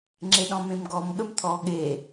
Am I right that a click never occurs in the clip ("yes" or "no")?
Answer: no